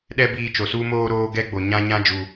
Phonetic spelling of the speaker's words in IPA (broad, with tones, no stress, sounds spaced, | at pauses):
ɗ ɛ˦ b iː˧ t͡ʃ o˨ s u˧ m oː˧ ɾ oː˦ ɡ ɛ˦ ɡ͡b o˨ ɲ ã˧ ɲ ã˧ d͡ʒ u˨